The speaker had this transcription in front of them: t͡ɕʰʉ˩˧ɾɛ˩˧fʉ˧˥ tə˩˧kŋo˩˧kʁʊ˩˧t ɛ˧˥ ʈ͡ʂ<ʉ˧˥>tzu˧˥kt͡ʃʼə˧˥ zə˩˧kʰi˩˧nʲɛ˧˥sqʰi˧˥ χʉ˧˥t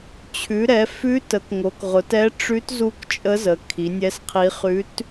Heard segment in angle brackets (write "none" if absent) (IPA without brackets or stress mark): ʉ˧˥